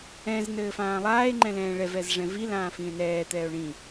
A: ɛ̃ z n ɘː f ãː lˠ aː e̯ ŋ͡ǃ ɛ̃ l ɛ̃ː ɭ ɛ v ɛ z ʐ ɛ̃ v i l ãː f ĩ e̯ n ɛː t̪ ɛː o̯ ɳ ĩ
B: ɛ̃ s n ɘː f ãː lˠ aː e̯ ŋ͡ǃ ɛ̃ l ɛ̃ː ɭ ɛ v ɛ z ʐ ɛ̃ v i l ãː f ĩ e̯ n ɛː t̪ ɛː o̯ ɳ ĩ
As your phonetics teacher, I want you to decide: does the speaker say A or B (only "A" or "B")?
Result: A